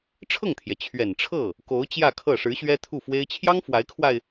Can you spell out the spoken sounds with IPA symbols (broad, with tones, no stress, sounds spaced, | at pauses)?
ʈ͡ʂʰ ɤ˥˩ ŋ t̪ʰ j ɛ˩ t͡ɕʰ ɥ ɛ˨˩ n ʈ͡ʂʰ ɤ˥˩ | k o˧˥ ʊ̯ t͡ɕ j ä˥˧ kʰ ɤ˥˩ ʂ ɻ̩˧˥ ɕ ɥ ɛ˥ t̪ʰ u˥˩ f w e˥ ɪ̯ t͡ɕʰ j ɑ˥ ŋ f w a˧˥ ɪ̯ kʰ w a˧ ɪ̯